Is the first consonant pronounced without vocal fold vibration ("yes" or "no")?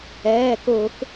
yes